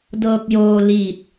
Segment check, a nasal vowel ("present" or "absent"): absent